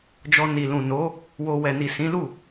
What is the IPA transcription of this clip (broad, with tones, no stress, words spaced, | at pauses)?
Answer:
d͡ʒɔ˧ni˨lũ˨ no˨˦ | wo˧ wɛ˨ni˨ sĩ˨˦lu˦˨